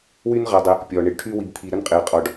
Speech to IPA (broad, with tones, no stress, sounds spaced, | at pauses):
w y˦ n ʁ ɐ˨ dˤ ɪ˨ | pʲ ɔ˩ ɳ ɪ˨ ɖ ʈʰ y˥ w i˨ b t̪ʰ i˨ ɾ ə˥ n qʼ ɪː˩ qʼ ɔ˨ ɖ